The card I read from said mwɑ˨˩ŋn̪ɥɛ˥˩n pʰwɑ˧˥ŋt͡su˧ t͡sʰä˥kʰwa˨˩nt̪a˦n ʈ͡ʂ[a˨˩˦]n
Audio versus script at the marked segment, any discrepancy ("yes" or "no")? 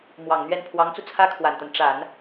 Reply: no